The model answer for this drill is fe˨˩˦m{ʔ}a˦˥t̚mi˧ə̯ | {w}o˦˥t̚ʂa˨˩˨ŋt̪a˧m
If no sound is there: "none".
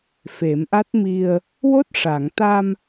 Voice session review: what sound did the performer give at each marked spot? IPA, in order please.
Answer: ʔ, w

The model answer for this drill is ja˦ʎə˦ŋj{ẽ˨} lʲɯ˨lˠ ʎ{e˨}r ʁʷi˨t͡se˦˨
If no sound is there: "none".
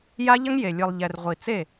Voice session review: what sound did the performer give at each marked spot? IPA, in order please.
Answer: e˨, ɛ˨

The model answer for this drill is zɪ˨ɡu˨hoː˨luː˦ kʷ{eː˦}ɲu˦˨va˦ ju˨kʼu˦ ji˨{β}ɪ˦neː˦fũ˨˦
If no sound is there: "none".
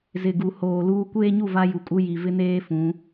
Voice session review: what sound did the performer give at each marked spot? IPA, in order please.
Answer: eː˦, v

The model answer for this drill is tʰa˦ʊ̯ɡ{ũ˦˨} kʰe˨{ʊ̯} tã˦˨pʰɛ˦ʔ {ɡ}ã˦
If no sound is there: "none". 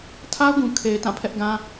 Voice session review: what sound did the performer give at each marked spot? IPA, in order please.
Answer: ũ˨, ɪ̯, ɡ

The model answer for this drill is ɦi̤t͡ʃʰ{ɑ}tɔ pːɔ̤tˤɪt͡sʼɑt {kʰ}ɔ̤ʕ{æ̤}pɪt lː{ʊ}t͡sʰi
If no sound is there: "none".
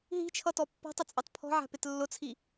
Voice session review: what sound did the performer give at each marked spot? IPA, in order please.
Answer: ʌ, pʰ, æ̤, ʊ

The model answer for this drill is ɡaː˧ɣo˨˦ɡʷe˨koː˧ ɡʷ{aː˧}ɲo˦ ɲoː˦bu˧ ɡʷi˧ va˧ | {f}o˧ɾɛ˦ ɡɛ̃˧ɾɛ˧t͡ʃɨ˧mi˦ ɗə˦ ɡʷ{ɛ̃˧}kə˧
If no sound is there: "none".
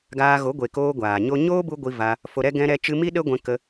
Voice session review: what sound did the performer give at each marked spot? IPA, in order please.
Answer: aː˨, f, ɛ̃˧

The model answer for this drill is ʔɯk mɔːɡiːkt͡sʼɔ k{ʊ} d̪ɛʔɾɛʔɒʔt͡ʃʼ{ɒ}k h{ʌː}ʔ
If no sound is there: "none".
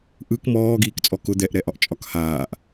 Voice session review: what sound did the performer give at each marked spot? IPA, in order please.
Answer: ʊ, ɒ, aː

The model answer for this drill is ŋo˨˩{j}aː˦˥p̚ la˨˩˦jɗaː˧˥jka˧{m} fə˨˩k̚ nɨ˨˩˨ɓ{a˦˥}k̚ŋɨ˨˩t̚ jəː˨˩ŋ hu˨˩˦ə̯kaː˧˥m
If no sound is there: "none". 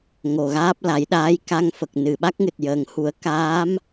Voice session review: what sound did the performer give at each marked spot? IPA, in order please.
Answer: ɣ, ŋ, a˦˥

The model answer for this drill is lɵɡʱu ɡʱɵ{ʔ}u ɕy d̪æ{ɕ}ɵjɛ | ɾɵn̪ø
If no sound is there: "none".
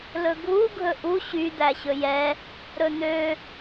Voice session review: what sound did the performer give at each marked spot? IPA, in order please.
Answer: ʔ, ɕ

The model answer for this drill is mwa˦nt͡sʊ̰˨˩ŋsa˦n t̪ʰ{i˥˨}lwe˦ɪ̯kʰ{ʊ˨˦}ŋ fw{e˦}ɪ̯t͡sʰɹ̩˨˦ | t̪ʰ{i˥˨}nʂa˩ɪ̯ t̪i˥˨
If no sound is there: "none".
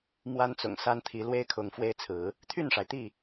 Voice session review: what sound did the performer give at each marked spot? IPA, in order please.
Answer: i˨˦, ʊ˨˦, e˦, y˥˨

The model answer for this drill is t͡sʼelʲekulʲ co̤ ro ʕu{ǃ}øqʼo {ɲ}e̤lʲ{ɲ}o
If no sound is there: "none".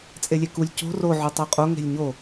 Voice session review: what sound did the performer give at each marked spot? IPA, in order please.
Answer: tˤ, ŋ, ɲ

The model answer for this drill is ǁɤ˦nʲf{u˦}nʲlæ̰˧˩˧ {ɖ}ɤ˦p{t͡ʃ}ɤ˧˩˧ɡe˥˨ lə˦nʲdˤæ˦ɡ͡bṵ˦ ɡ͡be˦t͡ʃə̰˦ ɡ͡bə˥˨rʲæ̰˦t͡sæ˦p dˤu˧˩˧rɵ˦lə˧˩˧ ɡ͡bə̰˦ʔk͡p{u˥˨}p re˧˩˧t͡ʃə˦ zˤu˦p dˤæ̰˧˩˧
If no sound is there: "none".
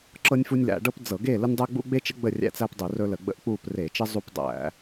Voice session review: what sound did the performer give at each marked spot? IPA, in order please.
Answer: u˦, ɖ, d͡z, u˥˨

